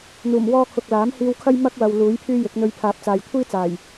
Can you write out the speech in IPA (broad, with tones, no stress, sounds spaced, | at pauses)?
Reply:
n̪ uː˨˩ m w ɔː˥ kʰ ʊ˨ k̚ l aː˨˥ m h iː˧ w kʰ ɐ˥ j m ɐ˥ k̚ w ɐ˨ w l uː˨˥ j pʰ yː˥ j ɪ˨˥ k̚ n̪ ɵ˧ ɥ pʰ aː˨˥ p̚ t͡s aː˨ j kʷʰ iː˥ t͡s aː˨˩ j